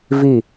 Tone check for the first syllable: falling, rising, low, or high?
falling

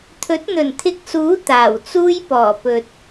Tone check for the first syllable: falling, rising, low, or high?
rising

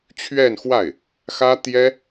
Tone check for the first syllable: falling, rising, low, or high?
falling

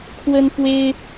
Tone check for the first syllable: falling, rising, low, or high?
high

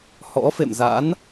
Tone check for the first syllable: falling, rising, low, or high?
rising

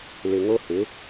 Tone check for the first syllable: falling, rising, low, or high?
low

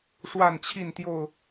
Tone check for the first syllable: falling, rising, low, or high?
falling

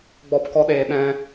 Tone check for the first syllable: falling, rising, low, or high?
high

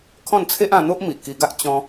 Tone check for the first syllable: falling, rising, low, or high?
falling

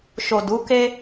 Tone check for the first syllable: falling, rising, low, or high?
low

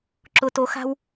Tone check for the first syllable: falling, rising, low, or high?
low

